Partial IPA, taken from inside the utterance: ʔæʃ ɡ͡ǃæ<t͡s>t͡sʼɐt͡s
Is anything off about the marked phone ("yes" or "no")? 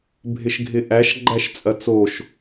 yes